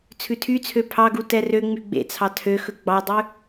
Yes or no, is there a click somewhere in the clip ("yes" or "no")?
no